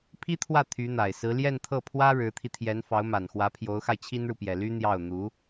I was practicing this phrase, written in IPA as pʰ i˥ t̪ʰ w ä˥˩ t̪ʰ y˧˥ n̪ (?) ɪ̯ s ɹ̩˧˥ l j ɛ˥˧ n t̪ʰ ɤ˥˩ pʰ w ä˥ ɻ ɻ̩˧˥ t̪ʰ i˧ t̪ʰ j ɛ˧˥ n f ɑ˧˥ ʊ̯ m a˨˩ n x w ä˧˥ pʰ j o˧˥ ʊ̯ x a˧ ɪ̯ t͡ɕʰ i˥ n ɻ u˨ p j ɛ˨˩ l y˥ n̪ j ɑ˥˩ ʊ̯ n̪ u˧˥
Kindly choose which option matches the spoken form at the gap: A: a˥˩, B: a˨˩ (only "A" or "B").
B